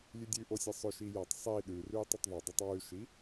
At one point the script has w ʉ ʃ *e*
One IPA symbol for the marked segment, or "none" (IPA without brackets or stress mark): i